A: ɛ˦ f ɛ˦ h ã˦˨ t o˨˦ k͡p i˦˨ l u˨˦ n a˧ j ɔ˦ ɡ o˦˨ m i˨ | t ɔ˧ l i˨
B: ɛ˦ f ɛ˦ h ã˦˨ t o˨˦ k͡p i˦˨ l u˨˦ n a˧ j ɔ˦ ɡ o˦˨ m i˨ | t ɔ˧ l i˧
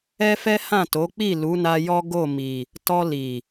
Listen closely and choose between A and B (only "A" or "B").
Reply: A